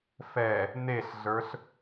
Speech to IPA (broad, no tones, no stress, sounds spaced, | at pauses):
f ɛ | n e ɬ ɮ ə˞ ɬ